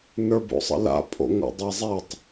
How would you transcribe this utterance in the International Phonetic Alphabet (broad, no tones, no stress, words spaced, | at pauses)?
nə˞bo̰sˤə̰la̰ pʼo̰ŋo̰dˤizˤɛtˤ